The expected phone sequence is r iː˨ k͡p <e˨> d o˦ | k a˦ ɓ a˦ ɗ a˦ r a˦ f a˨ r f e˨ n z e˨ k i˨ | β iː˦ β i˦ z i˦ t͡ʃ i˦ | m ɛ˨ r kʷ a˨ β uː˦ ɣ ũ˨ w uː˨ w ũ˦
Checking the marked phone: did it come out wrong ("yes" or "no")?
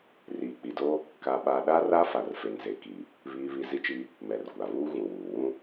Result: yes